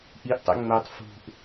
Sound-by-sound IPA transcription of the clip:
ʔ i ʔ tˤ ɛ̰ ŋ͡m œ tˤ f ṳ ʔ

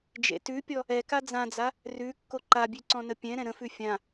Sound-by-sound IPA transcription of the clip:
d͡ʒ ḛ t ʉ pʲ ɔ | ɛ k a d͡z ã d͡z a | r ʉ kː o ǃ a bʲ ʉ ǀ ɔ̃ n ə pʲ ɛ̃ ɾ ɛ̃ ɾ ə̃ f ʉ fʲ ã

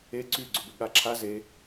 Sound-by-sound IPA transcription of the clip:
e ǀ y ɡ͡ǀ ʏ b ʏ ɠ a ǁʰ a z e

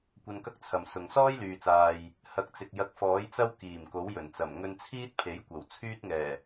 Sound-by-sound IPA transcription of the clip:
kʷ ɐ˧ n k ɐ˥ k̚ t͡sʰ ɐ˨ m s ʊ˨ ŋ s ɔː˥ j l yː˨ t͡s aː˨ j | h ɐ˨˥ k̚ t͡s ɪ˨ k̚ j ɐ˨˥ k̚ f ɔː˨˥ j t͡s ɐ˥ w k iː˨˩ m k o˨˥ w j ɵ˨˩ n t͡s ɐ˨˩ m ŋ ɵ˧ n t͡sʰ iː˥ t̚ pʰ e˨˥ j kʷ ɐ˨˩ w t͡sʰ yː˥ t̚ ŋ ɛː˨˩

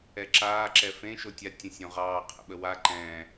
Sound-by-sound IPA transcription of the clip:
ɛ ǁ aː ǁ ɛ f ẽ ʃ o tʲ a tʲ ə̃ sʲ õ ʁ ɑː qʰ ə̰ ɓ ə w a ǃ ɛ̃

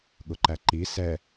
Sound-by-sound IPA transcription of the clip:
ɠ ʊ ǃ æ ǃ i s ɛ

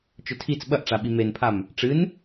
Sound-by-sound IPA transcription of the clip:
t͡ʃ ɵ tʰ i t͡s ɓ ɐ ʔ ʈ͡ʂ a ɓ i m e n pʰ a m | ʈ͡ʂ ɨ n

